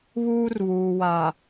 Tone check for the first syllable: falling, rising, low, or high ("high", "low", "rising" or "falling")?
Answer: high